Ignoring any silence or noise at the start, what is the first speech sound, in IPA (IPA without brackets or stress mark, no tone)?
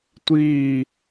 tʷ